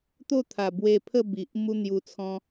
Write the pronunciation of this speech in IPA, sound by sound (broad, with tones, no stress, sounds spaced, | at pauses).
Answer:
t̪ o˥˧ t̪ʰ a˨˩ b w e˧ pʰ ə˥˧ b i˨ ʔ m u˦ n̪ j u˧ t͡sʰ ɔ̃˦